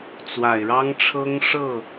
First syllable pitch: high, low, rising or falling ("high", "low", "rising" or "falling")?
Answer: low